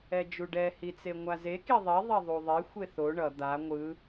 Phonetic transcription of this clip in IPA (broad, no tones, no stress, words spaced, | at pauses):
ɛd͡ʒuɖɛ hit͡seŋʷaze kiðˤi ðˤɛðˤuðˤe xʷeθo ɳʌ d̪a ŋʷɯ